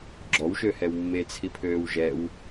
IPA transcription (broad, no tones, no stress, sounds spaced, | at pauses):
ɡ͡ǁ ɔ w ʃ ø h ɛ w mː e t͡sʰ i pʰ øː w ʒ ɛ w